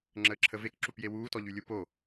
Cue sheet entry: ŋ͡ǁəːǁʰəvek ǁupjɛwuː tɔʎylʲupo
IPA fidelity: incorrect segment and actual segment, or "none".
ɛ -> e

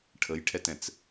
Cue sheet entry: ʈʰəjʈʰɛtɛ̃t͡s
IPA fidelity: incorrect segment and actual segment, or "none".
none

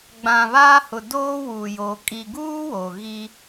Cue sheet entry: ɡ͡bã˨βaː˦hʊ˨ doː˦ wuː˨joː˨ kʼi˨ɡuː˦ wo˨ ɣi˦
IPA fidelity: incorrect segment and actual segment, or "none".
none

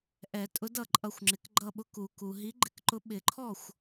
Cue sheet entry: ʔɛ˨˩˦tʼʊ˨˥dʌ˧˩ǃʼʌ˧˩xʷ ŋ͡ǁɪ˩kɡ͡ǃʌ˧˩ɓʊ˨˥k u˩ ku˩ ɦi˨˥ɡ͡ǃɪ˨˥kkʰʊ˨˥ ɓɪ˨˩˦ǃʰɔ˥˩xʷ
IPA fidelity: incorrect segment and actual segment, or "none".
kʰ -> ǃ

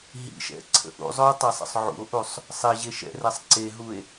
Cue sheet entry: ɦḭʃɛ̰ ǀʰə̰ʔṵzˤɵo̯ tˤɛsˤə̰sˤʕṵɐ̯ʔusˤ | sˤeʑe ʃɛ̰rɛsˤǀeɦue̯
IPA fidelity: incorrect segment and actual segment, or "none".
ɐ̯ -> o̯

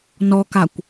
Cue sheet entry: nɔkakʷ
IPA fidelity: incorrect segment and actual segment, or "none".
none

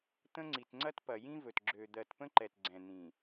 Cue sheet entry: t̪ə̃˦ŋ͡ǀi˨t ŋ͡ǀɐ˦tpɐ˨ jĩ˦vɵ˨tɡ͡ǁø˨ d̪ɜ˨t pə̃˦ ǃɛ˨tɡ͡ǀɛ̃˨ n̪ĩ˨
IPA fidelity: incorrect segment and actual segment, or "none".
none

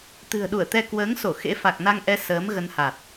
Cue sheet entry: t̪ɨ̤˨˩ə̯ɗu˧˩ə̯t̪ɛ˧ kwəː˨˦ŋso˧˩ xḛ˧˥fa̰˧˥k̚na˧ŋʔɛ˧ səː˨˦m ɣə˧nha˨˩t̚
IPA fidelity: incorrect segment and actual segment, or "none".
a̰˧˥ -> a˨˩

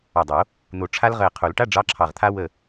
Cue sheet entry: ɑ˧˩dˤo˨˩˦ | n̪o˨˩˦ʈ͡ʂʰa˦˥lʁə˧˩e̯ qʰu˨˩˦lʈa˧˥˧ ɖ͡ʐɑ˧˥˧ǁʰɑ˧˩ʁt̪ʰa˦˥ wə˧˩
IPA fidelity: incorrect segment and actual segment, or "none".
none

